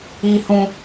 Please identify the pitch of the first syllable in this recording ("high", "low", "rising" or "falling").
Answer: high